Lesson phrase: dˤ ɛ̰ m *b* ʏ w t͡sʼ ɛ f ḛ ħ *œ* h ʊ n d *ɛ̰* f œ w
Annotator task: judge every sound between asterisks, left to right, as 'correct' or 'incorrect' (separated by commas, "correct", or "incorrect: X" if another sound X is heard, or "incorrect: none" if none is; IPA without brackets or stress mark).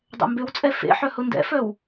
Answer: correct, correct, correct